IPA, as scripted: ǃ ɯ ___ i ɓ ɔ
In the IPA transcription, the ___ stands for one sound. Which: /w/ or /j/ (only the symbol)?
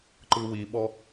w